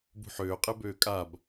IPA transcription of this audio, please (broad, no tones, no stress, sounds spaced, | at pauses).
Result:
b ṳ ħ øː qʼ e b øː kʼ a b